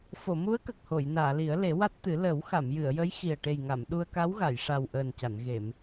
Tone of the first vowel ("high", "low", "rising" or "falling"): low